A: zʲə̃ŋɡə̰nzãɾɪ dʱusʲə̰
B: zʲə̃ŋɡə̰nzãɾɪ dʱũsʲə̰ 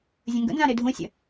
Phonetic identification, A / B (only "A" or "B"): B